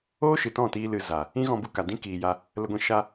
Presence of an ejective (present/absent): absent